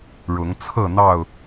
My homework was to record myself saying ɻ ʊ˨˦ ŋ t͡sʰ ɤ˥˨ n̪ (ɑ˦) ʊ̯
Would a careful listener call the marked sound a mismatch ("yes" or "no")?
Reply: yes